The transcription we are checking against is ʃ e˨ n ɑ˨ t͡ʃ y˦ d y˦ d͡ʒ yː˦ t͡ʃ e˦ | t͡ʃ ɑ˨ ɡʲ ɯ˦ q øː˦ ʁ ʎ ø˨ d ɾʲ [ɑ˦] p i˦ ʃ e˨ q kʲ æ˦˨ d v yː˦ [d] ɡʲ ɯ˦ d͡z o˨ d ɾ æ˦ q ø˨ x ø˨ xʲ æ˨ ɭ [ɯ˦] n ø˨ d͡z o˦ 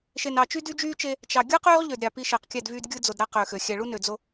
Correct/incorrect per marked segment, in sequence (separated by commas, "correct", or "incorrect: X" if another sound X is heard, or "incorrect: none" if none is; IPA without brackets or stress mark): incorrect: ɑ˨, correct, incorrect: u˦